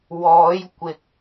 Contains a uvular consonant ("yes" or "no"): no